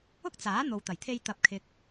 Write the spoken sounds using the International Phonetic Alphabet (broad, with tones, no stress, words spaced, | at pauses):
ʊ˥k̚t͡saː˨˥ n̪o˨wt̪ɐ˨˩jt̪ʰe˧j t̪ɐ˨˥p̚kʰɪ˨k̚